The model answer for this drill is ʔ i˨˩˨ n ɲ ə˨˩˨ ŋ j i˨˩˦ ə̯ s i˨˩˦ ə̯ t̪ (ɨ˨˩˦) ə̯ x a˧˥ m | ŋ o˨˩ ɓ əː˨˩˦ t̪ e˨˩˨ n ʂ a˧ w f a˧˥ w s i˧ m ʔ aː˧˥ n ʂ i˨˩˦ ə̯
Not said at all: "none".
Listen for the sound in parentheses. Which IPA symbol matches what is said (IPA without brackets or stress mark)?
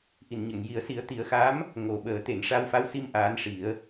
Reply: i˨˩˦